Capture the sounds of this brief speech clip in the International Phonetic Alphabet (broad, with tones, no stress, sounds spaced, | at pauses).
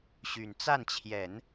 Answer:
ɕ y˨˩ n t͡s a˥˩ n t͡ɕʰ j ɛ˨˩˦ n